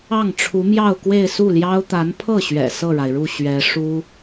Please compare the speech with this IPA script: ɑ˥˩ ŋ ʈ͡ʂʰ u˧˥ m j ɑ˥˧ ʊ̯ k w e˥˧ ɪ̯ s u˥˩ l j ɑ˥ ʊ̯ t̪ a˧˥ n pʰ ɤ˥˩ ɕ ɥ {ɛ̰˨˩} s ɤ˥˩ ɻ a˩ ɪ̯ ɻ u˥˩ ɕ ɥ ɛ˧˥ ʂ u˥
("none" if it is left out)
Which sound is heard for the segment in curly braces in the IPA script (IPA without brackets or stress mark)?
ɛ̰˨˩